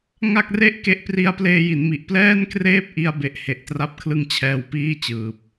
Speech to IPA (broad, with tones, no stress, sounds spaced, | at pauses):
ŋ a˥˩ k̚ r e˥˩ ʔ k e˦˥ ʔ p r i˧ a̯ p l eː˧ j i˩˦ n m i˨˩ ʔ p l ɛː˥˩ n k r eː˥˩ p̚ ʔ i˧ a̯ b e˦˥ ʔ h e˨˩ ʔ t r a˥˩ p̚ kʰ l ɯ˥˩ ŋ t͡ɕʰ ɛː˧ w p iː˥˩ t͡ɕ ɯː˨˩ p̚